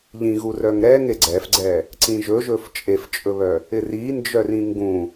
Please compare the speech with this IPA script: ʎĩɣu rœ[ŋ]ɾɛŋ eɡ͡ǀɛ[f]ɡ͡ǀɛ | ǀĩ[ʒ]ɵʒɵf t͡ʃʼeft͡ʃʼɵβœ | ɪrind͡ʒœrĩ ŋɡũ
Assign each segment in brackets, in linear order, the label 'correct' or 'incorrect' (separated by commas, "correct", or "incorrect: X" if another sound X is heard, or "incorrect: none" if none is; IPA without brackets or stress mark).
correct, correct, correct